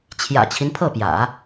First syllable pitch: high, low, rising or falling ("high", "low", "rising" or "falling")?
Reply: low